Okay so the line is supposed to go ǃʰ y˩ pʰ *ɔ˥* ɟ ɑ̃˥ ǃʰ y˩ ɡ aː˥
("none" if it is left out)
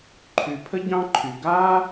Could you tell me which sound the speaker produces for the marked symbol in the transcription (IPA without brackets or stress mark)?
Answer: ə˥